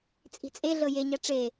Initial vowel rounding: unrounded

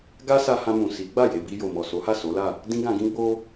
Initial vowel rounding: unrounded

